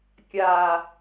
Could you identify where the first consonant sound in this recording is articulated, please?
velar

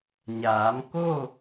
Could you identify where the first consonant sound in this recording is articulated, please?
palatal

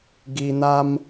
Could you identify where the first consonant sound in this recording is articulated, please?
velar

